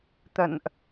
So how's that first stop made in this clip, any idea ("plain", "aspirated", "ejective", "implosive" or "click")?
plain